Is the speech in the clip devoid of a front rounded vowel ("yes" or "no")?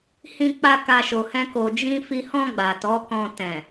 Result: yes